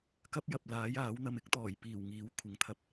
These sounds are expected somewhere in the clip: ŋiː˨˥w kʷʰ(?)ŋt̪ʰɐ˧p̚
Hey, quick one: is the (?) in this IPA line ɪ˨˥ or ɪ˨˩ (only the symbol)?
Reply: ɪ˨˥